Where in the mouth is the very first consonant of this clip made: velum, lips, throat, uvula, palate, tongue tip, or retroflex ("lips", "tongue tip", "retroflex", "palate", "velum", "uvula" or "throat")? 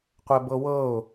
uvula